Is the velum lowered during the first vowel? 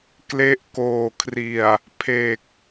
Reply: no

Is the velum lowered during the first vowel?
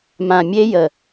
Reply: yes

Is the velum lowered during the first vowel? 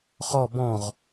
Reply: no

